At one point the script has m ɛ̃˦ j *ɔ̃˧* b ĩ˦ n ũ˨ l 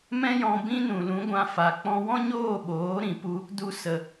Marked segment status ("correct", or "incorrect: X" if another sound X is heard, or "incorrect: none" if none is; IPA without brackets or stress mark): correct